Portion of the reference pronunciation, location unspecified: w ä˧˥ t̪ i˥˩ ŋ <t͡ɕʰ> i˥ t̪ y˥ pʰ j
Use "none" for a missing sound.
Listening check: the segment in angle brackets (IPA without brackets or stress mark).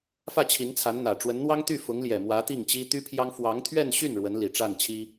t͡ɕ